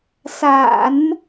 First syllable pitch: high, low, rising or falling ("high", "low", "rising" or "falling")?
low